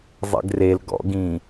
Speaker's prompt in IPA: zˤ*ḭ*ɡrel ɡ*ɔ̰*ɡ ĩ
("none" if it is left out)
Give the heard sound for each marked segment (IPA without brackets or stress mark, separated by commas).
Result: ḛ, ɔ̰